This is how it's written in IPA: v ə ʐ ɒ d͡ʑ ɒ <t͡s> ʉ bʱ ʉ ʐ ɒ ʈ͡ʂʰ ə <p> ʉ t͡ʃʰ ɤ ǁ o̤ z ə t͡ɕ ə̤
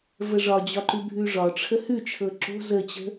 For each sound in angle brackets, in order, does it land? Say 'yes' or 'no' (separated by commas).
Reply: no, no